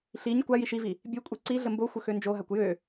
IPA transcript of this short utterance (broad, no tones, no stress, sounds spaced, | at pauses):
ɬ i ɲ kʷ a j i ʃ i v i | bʲ ø kʷʼ i ǀ i ɮ ə m b o xʷ ə x ø n d͡ʒ o ɦ a kʷ j ø